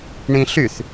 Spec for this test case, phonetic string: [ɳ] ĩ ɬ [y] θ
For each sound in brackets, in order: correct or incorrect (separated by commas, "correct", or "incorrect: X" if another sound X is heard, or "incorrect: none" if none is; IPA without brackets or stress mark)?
correct, correct